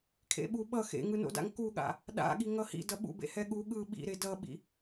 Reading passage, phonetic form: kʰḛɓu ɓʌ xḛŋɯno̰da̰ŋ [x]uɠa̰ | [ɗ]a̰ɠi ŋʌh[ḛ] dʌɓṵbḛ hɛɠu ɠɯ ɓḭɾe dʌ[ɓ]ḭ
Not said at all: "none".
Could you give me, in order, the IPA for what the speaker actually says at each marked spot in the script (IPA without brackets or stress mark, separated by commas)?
k, ɗ, ḭ, ɓ